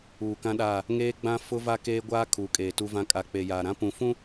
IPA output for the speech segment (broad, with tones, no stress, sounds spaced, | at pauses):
uː˨ k ã˦ ɗ aː˦˨ | ŋ eː˦ ɡ͡b ã˦ f ʊ˦ v a˦ k eː˦ ɡʷ aː˦ kʰ uː˨˦ kʼ eː˨ t u˦ v ã˦ kʼ a˨ k͡p e˨ j aː˨ ɾ ã˦ p ũ˨ f ũ˦